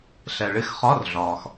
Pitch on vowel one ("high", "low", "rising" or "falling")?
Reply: low